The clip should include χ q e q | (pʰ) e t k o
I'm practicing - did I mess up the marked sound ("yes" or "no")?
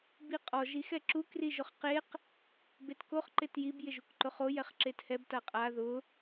yes